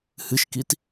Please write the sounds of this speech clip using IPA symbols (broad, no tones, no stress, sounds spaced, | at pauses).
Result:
h ɨ ʃ k i t